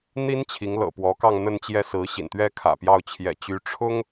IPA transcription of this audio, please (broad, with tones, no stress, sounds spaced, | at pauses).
n̪ i˥ n t͡ɕʰ i˧˥ ŋ l ɤ̰˨˩ p w ɔ˧˥ k ɑ˥˧ ŋ n̪ ə˥˧ n t͡ɕ j ɛ˥˩ s ɹ̩˧˥ ɕ ḭ˨˩ n t̪ ɥ ɛ˥ kʰ ä̰˨˩ p j ɑ˥˩ ʊ̯ t͡ɕʰ j ɛ̰˨˩ t͡ɕ y˧˥ ʈ͡ʂʰ ʊ˥ ŋ